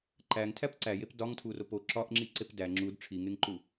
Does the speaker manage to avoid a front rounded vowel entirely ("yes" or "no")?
yes